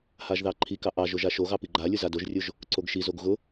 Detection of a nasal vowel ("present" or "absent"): absent